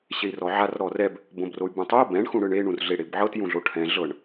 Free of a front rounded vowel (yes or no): no